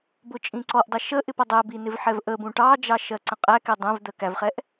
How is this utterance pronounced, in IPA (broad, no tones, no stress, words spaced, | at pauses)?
bʊt͡ʃʼĩǀɔʔdˤə ʃəʔɪp ʌdˤæbi nɪvħɛvʔəbũ ʈɑd͡ʒɑ ʃɜǀə̃qʼækɛ dˤɛ̃v d̪ɜkævχɛʔ